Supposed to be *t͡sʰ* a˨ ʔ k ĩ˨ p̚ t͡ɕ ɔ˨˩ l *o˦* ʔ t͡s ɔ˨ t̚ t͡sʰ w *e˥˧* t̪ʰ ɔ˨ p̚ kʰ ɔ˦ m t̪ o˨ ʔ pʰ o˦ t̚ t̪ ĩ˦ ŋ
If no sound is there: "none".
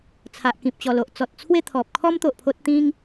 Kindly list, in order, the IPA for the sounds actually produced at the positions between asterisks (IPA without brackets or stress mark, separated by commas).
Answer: t͡sʰ, o˨, e˥˧